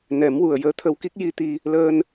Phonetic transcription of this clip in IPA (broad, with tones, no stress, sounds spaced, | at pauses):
n ɛ˨˩˦ m w u˨˩ ə̯ j əː˧˥ t̪ʰ ə˧ w k i˦˥ k̚ j i˧ t̪ i˧ | l əː˧ n